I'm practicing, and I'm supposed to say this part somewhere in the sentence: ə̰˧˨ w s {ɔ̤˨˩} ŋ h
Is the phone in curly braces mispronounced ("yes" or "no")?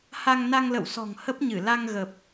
no